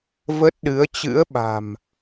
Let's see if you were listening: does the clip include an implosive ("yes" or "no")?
yes